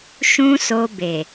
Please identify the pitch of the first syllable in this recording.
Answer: high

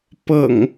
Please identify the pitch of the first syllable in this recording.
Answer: low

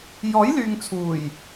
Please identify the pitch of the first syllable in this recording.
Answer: rising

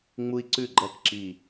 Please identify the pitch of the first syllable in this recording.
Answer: high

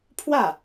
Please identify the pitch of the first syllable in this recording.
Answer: falling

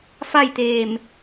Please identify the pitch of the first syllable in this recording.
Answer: falling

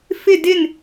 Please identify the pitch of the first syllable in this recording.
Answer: falling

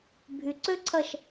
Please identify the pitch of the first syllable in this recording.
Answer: low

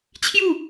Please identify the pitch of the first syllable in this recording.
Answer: falling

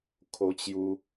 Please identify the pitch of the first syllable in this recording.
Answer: high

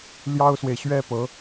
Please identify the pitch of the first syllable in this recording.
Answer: high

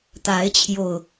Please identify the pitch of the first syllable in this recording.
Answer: rising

